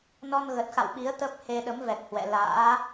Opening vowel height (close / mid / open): mid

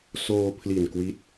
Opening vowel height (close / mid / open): mid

